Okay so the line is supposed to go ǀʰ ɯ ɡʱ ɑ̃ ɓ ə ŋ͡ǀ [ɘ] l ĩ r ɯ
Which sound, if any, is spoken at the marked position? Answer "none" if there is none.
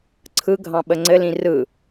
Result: ɘ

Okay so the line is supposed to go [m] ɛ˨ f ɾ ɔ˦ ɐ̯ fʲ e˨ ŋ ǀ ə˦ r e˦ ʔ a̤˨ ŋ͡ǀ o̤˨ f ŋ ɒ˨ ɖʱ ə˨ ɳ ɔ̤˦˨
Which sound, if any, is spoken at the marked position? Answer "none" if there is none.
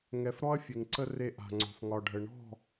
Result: ŋ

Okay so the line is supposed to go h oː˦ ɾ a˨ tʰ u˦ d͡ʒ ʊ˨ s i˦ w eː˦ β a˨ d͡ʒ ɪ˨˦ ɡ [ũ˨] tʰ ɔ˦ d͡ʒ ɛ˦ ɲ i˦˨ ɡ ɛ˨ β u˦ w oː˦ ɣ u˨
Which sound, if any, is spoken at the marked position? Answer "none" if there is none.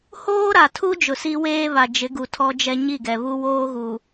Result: u˨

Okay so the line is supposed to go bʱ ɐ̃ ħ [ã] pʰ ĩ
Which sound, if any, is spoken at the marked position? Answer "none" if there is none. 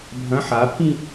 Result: a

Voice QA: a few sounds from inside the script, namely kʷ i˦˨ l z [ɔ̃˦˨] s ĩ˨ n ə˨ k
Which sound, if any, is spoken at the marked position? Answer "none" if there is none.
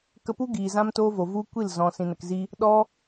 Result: ɔ̃˨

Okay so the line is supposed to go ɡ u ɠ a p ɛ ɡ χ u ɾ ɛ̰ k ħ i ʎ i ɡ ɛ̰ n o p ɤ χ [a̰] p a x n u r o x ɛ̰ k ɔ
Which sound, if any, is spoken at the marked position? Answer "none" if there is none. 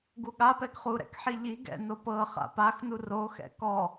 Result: a̰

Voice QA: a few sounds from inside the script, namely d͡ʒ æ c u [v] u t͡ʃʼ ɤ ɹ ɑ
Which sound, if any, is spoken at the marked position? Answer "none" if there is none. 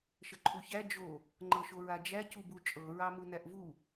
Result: b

